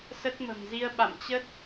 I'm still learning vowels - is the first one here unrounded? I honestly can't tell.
yes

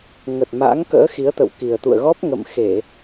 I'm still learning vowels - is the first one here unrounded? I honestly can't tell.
yes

